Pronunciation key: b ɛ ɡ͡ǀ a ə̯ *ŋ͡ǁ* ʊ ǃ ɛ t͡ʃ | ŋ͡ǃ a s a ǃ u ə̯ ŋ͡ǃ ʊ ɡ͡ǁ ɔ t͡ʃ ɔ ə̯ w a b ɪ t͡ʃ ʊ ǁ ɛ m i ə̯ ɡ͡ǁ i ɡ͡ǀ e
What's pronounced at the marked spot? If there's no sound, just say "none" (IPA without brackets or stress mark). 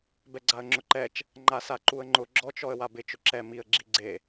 ŋ͡ǁ